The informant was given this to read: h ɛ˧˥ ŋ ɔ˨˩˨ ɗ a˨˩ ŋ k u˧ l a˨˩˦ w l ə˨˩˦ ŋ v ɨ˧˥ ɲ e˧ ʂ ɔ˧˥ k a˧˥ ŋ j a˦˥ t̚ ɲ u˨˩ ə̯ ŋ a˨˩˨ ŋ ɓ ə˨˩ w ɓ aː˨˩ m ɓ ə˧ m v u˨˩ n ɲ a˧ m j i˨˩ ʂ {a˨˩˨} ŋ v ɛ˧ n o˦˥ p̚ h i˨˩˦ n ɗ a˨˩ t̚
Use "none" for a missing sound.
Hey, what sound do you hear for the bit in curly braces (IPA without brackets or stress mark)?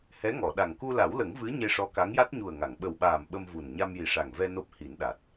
a˨˩